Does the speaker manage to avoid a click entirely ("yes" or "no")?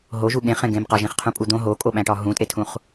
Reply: yes